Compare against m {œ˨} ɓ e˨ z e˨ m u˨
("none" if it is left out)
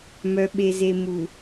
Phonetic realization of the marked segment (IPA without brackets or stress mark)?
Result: œ˨